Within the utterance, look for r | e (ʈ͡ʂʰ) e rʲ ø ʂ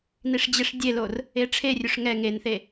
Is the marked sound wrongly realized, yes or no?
no